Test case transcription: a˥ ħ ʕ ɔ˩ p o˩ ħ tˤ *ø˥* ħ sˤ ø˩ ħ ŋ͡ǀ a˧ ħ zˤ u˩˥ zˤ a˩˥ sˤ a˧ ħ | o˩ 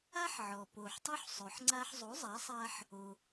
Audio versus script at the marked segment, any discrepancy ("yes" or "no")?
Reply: yes